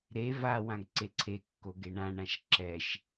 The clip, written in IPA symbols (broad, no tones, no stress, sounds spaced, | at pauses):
ɾ e v a w ã ɡ ǀ e ǀʰ e kː o ɡ e ɳ ã ɳ ã ʃ ǁ ɛ ʃ